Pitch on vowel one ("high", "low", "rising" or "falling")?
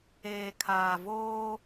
low